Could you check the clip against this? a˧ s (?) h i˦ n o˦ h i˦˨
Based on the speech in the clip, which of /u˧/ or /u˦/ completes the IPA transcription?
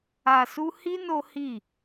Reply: u˦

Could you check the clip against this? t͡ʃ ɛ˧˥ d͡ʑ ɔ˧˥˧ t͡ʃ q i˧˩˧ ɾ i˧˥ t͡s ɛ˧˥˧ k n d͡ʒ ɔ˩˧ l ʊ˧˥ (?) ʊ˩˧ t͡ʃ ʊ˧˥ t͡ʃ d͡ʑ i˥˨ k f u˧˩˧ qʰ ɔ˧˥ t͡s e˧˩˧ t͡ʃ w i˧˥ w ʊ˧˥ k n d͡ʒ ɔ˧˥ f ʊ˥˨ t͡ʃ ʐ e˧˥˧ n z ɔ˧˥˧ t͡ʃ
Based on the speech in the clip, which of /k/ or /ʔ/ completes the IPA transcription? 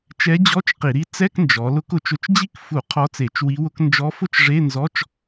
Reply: k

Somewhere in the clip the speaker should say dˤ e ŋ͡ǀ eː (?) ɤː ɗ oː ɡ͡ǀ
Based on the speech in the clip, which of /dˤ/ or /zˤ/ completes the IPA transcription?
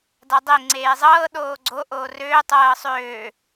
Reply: zˤ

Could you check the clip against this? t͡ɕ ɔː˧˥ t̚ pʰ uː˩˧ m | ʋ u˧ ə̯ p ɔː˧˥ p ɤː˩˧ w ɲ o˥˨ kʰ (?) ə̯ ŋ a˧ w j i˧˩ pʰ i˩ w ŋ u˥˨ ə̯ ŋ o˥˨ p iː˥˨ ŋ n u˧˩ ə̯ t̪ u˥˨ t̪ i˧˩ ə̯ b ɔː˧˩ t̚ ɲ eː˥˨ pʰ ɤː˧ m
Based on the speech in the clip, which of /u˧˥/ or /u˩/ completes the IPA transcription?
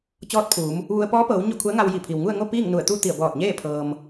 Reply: u˧˥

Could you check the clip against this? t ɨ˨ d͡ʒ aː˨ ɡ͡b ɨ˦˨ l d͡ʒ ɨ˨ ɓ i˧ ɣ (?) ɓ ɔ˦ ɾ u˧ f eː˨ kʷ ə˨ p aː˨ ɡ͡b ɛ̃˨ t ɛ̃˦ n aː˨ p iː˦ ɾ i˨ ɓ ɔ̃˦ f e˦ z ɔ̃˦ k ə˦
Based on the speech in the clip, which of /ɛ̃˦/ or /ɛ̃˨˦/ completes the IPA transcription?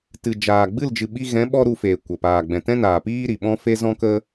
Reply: ɛ̃˨˦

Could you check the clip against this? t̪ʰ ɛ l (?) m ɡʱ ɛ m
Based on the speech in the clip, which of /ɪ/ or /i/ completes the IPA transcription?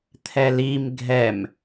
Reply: i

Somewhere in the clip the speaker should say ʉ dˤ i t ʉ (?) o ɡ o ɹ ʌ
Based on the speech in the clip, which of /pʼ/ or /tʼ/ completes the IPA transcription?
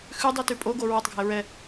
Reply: pʼ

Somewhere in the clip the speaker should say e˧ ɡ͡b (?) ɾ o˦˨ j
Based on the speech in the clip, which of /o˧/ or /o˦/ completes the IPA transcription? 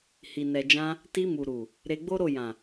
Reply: o˦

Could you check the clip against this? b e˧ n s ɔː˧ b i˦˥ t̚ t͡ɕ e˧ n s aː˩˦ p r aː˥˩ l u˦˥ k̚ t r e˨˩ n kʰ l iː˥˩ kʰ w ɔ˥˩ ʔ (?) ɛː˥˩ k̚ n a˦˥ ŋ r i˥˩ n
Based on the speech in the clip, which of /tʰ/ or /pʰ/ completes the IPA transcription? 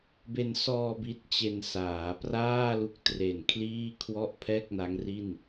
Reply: pʰ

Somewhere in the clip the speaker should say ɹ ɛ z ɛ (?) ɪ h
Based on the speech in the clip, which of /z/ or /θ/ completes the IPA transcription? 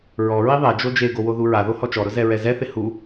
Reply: θ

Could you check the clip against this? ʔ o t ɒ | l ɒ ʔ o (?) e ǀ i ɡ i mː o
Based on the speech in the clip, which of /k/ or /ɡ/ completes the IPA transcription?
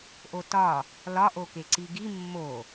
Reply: k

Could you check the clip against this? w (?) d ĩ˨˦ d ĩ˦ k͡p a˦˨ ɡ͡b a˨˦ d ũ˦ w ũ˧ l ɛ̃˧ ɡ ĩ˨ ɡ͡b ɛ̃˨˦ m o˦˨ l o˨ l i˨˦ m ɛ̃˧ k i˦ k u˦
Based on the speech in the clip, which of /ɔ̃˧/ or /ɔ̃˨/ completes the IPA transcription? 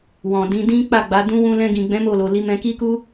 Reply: ɔ̃˨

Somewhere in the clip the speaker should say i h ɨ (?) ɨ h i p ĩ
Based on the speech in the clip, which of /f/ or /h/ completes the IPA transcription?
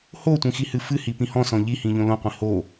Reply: f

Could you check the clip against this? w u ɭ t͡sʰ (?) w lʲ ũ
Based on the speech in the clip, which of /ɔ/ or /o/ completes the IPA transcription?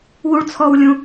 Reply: ɔ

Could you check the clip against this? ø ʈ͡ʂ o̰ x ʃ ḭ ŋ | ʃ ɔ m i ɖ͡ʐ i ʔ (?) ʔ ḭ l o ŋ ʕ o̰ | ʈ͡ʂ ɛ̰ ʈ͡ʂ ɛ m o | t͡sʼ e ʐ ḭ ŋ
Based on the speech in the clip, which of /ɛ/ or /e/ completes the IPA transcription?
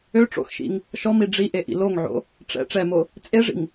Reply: e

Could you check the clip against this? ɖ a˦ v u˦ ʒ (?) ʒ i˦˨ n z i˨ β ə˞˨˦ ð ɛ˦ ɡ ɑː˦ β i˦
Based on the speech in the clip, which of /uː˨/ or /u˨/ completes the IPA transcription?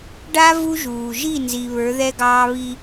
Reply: uː˨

